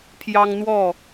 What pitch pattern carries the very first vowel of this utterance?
high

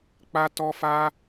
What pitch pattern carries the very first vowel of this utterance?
high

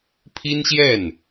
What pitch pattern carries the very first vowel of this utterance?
high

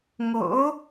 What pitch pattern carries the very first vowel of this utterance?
rising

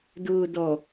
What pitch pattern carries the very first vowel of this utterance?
low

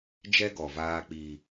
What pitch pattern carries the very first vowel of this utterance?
high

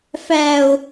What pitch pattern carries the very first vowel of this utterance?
low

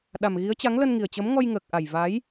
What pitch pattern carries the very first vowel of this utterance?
low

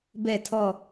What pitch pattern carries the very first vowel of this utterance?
falling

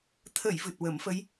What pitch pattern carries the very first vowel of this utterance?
low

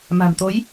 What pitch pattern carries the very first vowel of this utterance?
low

